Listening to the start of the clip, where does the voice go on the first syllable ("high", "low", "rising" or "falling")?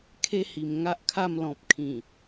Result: high